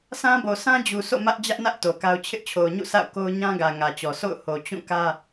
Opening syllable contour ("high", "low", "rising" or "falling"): high